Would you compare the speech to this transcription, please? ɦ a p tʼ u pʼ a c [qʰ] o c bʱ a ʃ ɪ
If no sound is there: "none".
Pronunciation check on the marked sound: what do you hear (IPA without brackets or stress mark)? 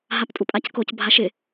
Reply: k